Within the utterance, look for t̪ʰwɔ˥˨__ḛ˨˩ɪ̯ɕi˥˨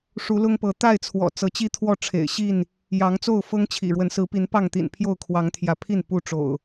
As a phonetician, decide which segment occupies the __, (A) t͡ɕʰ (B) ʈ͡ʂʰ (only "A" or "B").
B